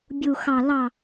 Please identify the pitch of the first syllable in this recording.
low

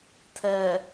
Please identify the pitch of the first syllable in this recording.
low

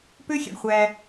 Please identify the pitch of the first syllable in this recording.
high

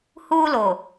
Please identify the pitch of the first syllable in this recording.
high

